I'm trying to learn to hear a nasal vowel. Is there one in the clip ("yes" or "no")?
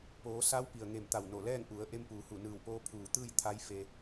no